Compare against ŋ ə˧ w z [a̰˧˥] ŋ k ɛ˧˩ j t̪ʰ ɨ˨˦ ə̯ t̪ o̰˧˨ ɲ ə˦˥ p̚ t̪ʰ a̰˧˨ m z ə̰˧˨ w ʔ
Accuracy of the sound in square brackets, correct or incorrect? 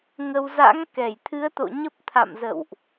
correct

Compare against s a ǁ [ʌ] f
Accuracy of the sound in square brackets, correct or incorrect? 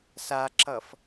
correct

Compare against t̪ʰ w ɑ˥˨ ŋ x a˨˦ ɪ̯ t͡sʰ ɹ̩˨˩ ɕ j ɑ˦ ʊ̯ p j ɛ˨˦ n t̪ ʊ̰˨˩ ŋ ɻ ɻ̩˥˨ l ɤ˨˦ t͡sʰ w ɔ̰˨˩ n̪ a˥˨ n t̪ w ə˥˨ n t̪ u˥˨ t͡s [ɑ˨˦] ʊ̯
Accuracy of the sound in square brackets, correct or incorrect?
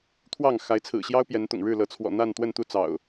incorrect: ɑ̰˨˩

